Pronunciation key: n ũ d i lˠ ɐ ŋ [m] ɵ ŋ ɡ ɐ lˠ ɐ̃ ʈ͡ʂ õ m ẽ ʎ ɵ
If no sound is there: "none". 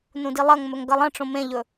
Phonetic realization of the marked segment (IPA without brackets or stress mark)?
m